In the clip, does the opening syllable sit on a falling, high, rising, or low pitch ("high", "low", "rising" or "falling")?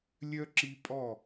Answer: high